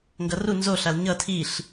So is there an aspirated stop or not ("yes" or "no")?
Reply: yes